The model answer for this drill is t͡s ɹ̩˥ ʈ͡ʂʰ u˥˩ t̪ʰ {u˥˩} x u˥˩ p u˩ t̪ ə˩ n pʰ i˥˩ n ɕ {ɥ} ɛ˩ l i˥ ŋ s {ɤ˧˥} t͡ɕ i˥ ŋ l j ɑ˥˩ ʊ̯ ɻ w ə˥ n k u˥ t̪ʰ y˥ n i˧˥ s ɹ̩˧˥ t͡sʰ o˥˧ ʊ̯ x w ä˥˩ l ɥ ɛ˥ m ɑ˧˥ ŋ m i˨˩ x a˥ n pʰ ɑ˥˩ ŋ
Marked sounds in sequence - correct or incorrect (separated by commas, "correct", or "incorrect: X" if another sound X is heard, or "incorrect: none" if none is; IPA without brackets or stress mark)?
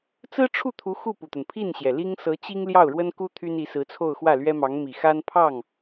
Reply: incorrect: u˧˥, incorrect: j, correct